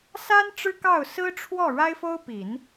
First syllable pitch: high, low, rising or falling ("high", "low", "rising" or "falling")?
high